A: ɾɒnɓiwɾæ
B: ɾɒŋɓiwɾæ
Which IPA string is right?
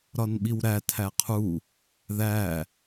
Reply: A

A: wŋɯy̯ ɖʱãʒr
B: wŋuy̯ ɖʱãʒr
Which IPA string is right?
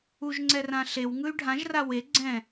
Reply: A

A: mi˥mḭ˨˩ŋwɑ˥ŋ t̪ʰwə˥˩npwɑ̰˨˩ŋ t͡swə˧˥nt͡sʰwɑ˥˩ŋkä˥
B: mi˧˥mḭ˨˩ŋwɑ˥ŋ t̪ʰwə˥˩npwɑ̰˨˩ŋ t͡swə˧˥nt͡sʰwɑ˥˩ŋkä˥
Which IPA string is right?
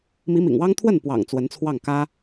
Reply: B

